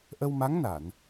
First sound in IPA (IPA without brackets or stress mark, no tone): ʔ